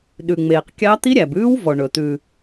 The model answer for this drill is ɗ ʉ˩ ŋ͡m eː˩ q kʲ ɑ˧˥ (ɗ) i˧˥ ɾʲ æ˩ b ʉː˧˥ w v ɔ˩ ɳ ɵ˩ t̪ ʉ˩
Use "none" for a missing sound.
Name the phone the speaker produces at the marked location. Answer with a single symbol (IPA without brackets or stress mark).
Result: t̪